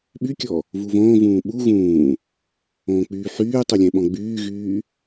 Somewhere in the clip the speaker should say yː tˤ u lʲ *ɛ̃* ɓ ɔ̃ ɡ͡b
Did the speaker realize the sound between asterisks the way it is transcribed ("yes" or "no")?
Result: yes